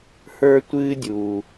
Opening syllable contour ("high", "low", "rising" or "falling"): high